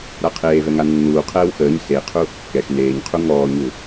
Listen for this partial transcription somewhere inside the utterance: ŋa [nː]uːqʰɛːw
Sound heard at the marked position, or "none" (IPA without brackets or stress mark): nː